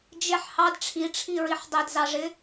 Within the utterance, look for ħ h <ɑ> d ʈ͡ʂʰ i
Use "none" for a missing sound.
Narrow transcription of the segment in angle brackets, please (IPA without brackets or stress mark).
ɑ